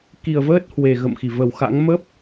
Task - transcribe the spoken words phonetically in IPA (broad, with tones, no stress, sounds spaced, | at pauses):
k i˨˩ ə̯ v əː˦˥ t̚ h w e˨˩ ɣ ə̰˧˨ m x i˧˩ v ə˨˩ w x a̰˧˥ ŋ m ə˦˥ p̚